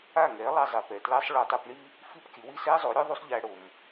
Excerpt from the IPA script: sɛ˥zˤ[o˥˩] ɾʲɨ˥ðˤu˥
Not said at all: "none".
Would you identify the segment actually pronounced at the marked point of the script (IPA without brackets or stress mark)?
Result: o˩˥